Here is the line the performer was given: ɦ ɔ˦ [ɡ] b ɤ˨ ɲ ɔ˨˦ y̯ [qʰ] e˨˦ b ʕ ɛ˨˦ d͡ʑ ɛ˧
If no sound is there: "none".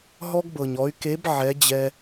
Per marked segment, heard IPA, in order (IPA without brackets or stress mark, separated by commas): ɡ, k